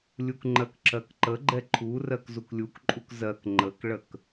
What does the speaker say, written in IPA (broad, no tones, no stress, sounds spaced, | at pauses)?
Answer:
lʲ u k ŋ͡ǃ ɜ k ǁ ɜ k ǃ ə ɡ͡ǃ ɛ ǃʰ u r ɜ k z u k lʲ u k ǃʼ u k z ɜ k ŋ͡ǃ ə k ɭ ə k